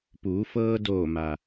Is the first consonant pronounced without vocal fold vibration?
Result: yes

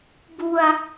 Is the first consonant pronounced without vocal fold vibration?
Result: no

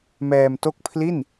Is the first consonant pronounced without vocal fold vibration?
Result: no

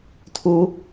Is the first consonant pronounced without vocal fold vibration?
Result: yes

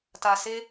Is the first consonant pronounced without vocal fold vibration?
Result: yes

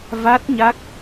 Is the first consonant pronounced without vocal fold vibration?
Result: no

